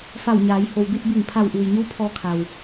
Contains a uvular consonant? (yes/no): no